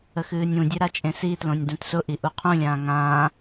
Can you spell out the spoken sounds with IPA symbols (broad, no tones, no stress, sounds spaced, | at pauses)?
ə x ɨː nʲ ũ dʲ ɨ ɾ a t͡ʃʼ ẽ s i t l õ nʲ d ũ t s ʊ ʔ i ʔ u qʰ ũ lʲ ãː ŋ ãː